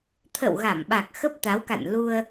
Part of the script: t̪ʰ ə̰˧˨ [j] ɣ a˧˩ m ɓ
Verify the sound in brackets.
incorrect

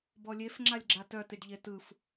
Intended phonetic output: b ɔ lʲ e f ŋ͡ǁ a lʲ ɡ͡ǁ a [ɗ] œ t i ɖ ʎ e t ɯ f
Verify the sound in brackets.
incorrect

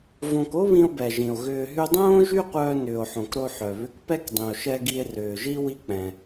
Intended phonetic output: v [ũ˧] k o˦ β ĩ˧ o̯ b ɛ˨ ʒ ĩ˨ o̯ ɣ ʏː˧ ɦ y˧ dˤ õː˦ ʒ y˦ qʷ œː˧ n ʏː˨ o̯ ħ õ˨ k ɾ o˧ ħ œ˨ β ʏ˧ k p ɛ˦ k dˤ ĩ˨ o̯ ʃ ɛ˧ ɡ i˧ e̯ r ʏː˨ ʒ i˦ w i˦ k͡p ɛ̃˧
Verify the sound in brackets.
incorrect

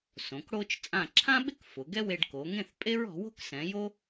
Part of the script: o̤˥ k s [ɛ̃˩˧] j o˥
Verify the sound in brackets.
correct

